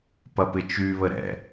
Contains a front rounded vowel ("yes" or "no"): yes